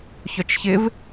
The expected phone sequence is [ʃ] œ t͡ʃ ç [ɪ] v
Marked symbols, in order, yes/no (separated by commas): no, yes